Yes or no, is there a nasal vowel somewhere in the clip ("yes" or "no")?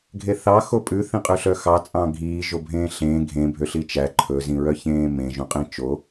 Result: yes